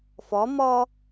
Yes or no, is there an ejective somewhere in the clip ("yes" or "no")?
no